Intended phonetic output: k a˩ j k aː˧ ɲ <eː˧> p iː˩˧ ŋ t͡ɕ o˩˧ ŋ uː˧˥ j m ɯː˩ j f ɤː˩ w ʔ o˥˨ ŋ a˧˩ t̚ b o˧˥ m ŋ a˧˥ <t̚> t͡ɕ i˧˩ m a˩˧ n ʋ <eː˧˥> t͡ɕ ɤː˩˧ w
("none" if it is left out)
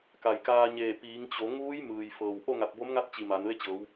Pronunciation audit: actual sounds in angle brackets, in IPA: eː˧˩, t̚, e˧˥

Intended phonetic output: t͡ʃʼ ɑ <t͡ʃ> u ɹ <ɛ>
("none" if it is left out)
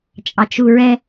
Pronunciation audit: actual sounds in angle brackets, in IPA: t͡ʃ, ɛ

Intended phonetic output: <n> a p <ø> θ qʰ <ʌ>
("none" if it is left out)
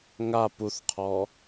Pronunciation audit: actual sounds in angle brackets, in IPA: ŋ, u, ɔ

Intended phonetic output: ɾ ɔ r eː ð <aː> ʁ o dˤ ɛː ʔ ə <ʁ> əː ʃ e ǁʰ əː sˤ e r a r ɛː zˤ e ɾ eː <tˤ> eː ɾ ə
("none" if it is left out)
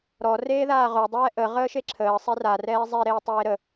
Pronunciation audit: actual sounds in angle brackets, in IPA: aː, ʁ, tˤ

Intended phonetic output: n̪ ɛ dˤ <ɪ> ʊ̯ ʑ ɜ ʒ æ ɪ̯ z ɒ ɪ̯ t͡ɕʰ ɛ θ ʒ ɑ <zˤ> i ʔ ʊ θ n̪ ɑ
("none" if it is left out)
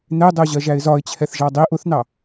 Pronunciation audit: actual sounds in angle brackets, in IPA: ɪ, dˤ

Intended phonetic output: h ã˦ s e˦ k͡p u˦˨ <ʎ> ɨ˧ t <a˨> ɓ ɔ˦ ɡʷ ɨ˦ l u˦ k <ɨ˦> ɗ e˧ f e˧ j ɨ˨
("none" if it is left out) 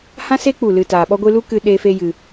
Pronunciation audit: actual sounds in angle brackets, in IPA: l, aː˨, ɨ˧

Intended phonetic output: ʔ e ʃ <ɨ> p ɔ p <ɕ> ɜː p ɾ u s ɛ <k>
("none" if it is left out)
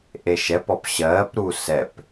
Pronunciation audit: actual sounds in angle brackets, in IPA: ɛ, ɕ, p

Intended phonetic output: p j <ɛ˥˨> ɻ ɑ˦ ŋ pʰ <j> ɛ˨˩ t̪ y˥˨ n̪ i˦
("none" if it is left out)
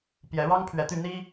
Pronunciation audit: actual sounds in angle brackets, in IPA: ɛ˨˦, ɥ

